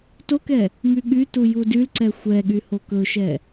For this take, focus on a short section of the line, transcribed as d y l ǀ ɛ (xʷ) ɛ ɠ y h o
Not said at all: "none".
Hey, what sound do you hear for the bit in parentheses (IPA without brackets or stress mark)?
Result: xʷ